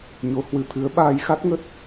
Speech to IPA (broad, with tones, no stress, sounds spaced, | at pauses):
ɲ o˨˦ h w ɨ˨˦ t̪ʰ ɨ˨˦ ə̯ ɓ aː˧ j x a˦˥ t̚ ŋ ə˦˥ t̚